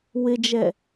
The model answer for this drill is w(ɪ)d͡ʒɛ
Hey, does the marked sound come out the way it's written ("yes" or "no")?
yes